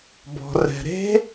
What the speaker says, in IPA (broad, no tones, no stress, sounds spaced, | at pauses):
b ɔ̤ r ɛ̤ ɾ e̤